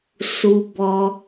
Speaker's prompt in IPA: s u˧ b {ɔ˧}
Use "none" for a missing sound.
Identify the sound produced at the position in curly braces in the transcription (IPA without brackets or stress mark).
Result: ɔ˧